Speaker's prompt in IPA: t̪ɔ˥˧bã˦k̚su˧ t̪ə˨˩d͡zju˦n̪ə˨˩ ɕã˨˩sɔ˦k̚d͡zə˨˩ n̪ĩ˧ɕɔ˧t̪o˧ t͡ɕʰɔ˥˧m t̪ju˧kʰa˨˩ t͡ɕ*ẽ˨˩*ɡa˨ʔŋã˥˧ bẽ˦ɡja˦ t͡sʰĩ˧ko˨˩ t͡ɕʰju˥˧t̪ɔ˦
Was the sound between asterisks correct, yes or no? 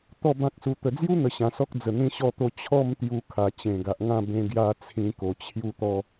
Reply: yes